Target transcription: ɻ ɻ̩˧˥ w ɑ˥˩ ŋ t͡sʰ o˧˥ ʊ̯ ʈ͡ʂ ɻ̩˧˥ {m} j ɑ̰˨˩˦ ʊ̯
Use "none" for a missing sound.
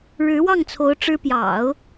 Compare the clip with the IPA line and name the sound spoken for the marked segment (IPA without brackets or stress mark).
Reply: p